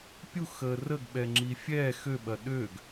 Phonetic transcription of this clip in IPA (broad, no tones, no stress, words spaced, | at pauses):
pʲuxəː rəɡɓɛŋ͡ǁi fʲɛ xøɓɐ ɗøɡ